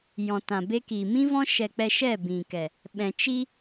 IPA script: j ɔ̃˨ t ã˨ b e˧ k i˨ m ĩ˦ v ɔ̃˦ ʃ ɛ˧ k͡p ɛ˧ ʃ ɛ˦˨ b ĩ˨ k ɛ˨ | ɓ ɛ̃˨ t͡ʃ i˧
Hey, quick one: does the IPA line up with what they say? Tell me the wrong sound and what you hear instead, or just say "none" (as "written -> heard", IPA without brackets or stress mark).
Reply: none